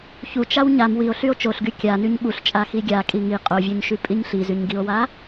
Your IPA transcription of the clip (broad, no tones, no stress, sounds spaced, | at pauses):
ç u t͡ʃ a w ɲ a m w i o̯ ɬ y o̯ t͡ʃ o ɬ ɡ y kʲ a n y ɲ ɓ u ɬ t͡ʃʼ a x i ɡʲ a kʼ i ŋ i qʼ o vʲ o ɲ ʃ y pʼ i ɲ ɬ i z y ɲ ɡ i o̯ w a